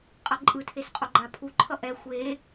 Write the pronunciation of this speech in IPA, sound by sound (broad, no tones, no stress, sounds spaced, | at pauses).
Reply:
qʼ ʌ ǃʼ ɯ tʰ e s qʼ o ɡ͡ǃ a pʰ u ǃʰ ʌ ʔ ɛ xʷ e